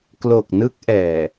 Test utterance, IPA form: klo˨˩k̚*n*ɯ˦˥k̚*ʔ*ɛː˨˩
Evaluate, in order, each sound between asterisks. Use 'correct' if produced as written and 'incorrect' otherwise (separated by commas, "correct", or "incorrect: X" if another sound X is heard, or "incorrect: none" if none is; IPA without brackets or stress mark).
correct, correct